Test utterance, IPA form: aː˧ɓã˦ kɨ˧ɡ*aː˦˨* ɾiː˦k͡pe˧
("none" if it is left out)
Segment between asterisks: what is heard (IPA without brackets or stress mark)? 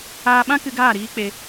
aː˦˨